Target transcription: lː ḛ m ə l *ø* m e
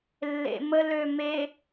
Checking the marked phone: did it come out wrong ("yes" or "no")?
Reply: no